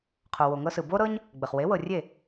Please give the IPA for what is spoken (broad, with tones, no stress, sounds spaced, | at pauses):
qʰ o˩ w o˩ ŋ ɤ˧ s ɯ˩ b o˥ ɾ ɤ˥ ɲ | ɡ͡b ə˩ χ w e˩˥ w ɤ˩ rʲ e˥˩